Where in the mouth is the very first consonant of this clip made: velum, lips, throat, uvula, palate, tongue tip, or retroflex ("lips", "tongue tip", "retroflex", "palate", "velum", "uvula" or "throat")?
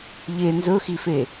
palate